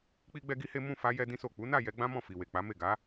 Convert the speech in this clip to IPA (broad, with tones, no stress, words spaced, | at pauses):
k͡pi˦ɡ͡bɛ˦ɡi˦he˦ mũ˦˨fa˧ jɛ˦dĩ˦so˦˨ k͡pu˨˦na˦˨ jɛ˧ɡ͡bã˦ mɔ̃˦˨ fi˨we˨ k͡pa˨˦me˦˨ɡa˨˦